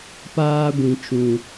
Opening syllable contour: high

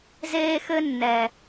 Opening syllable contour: high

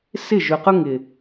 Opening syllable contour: falling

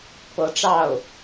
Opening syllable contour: rising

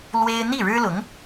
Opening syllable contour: high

